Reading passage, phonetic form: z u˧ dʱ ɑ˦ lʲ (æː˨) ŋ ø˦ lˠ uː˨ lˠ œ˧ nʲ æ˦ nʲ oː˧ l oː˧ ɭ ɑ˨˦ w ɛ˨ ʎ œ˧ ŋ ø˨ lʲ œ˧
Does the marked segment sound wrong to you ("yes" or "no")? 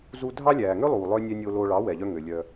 no